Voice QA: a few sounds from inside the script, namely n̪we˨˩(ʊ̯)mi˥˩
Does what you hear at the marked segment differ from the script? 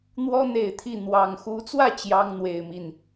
yes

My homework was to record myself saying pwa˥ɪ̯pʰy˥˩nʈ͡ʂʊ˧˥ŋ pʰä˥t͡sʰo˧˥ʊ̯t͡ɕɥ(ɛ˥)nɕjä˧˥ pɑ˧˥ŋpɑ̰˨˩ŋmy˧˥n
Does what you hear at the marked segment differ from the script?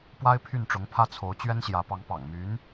no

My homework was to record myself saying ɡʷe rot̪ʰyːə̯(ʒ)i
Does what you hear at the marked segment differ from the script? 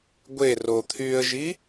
no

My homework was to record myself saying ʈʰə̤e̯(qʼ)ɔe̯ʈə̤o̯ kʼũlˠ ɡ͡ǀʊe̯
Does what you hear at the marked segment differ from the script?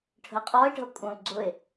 no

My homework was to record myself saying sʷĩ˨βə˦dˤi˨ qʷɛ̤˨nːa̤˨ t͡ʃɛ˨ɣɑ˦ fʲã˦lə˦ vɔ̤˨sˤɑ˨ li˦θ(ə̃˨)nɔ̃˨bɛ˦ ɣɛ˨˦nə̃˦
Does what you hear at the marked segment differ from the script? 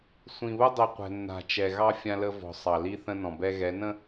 yes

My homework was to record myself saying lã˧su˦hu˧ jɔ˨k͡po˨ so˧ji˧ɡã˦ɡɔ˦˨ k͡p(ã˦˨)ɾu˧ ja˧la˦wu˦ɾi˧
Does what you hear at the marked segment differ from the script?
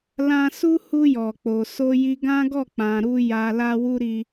yes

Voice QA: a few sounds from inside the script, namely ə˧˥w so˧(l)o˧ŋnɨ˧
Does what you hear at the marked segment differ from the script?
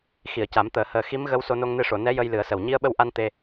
yes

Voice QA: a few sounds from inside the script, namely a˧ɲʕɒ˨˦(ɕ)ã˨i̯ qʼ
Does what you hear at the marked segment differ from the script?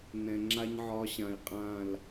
no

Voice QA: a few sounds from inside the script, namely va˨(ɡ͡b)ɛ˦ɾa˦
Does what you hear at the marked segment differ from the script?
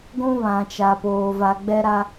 no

